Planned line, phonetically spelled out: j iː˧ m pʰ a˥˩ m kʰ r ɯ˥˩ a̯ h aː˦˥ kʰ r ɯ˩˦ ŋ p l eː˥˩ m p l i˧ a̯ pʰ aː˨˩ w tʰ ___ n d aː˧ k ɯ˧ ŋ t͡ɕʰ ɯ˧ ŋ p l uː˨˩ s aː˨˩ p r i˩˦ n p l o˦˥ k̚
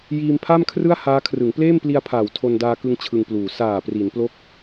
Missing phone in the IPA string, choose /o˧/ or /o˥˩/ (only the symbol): o˧